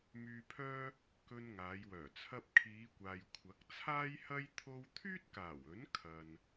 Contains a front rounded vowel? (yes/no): yes